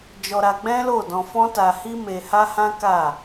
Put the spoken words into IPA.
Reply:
d͡ʒ ɔ˧ ɾ a˧ ɡ͡b ɛ̃˦ l o˦˨ d ɔ̃˧ f ɔ̃˦ t a˧ h i˦ m e˧ h a˦ h ã˦ k a˦˨

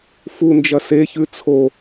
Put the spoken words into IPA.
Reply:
f u n d͡ʒ ɐ s e ç ʉ t͡sʰ o

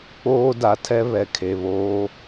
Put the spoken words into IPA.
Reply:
k͡p oː˦ d a˨ tʰ ɛ˦ β ɛ˨ kʰ e˨ β oː˦

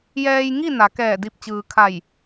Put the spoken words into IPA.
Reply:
j ɛː˧ j ŋ i˥˨ n a˩˧ k ɛː˧˩ d i˧˩ p̚ t͡ɕ ɯː˩ kʰ a˧˩ j

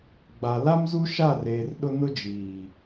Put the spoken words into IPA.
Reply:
ɡ͡b a˨ l a˦ m z u˦ ʃ a˦˨ r eː˨ r ɗ ʊ˦ n ʊ˦ d͡ʒ iː˨

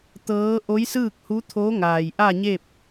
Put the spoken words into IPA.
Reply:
t̪ ɤː˧˥ ʔ o˧˥ j s ɯː˥˨ k̚ h u˧˥ t̪ʰ o˧˥ ŋ aː˩ j ʔ a˥˨ ɲ e˥˨ p̚

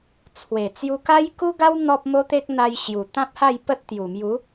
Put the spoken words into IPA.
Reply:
t͡sʰ w e˨˩ t͡s j u˧ k a˦ j k u˦ ɡ a˦ w n̪ ɔ˦ p̚ m o˦ t̪ e˦ k̚ n̪ a˧ j ɕ j u˨˩ t̪ ã˦ p̚ h a˥˧ j p ə˦ t̚ t̪ j u˨˩ m j u˨˦

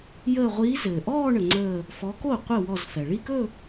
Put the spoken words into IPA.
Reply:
j əː˧˩ ʁʷ iː˨˦ z ɘː˩ ʔ ɔː˥˧ ɳ ə˩ ŋ͡ǀ əː˧˩ | f ɔ˨˦ k o˥˩ qʷ ɘ˥˩ w ɔ˧˩ z f ɛ˩ ɭ i˥˧ k ɵ˥˧

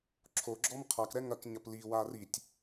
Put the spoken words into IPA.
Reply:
ǁʰ o ɡ͡ǁ ɔ m qʰ a k ɾ ɛ ŋ ɐ k ɲ ɐ p l i w a r i tʲ

